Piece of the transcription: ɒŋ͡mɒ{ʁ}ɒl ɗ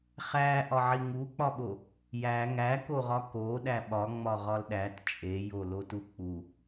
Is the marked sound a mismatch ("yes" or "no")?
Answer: no